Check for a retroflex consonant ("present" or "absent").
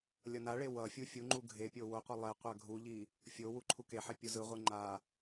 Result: present